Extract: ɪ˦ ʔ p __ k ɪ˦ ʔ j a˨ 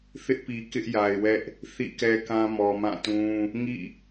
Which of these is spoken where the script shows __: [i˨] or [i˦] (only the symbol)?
i˨